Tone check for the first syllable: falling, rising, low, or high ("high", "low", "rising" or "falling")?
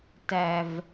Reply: low